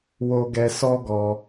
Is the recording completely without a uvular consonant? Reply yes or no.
yes